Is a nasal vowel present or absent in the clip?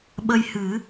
absent